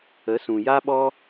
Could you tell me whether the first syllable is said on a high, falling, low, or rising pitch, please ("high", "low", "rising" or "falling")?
rising